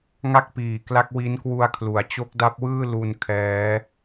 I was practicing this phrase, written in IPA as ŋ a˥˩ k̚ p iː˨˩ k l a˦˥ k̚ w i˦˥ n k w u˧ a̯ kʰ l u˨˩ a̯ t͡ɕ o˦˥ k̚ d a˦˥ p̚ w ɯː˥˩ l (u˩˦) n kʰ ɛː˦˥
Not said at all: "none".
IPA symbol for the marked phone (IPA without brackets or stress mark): u˧